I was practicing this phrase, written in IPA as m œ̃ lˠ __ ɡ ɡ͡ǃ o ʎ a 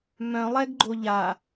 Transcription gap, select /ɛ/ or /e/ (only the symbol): ɛ